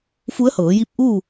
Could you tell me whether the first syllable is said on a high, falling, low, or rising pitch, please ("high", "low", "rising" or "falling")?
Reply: rising